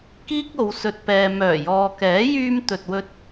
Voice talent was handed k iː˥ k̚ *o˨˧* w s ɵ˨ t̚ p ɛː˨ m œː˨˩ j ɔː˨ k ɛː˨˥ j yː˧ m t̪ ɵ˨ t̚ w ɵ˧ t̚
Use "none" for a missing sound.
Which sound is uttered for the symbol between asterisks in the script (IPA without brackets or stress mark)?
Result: o˨˧